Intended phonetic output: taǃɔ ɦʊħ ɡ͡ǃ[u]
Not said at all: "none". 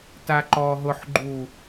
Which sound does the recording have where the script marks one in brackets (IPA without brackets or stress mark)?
u